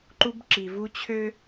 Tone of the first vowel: high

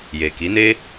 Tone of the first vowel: low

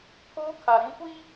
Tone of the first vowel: high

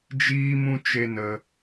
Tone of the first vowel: high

